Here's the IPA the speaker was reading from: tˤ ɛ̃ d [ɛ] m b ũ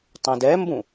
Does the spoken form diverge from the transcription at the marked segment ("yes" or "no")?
no